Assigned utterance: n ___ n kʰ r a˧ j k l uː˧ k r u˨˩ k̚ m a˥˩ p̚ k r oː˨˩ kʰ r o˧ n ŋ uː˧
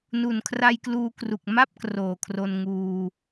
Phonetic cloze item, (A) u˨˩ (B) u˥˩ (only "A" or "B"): A